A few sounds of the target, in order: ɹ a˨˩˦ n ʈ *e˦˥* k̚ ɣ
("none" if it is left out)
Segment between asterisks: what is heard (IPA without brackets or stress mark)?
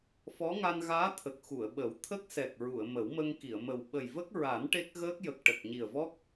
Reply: e˦˥